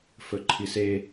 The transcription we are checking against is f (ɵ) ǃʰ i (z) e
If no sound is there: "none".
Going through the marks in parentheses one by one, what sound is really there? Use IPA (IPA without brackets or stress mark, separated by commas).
ɵ, s